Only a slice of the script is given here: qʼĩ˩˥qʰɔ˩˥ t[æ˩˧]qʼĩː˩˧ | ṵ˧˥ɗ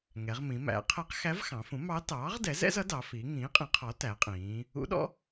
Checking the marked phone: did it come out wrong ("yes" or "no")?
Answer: no